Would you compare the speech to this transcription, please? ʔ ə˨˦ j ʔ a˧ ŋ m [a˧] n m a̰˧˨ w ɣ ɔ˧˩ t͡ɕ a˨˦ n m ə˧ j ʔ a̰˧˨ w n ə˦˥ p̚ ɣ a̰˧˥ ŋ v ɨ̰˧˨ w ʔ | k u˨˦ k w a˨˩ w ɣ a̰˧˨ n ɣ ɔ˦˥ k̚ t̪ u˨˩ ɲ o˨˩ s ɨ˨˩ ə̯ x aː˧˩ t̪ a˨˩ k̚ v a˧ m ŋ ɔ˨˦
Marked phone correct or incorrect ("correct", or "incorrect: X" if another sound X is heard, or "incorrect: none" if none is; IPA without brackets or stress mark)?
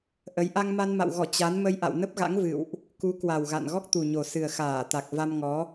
correct